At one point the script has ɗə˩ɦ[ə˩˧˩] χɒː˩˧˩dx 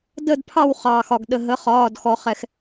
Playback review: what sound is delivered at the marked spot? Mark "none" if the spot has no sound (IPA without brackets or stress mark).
ə˩˧˩